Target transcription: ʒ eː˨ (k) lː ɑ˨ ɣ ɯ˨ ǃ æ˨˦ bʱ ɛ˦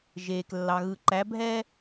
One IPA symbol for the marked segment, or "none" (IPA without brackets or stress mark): k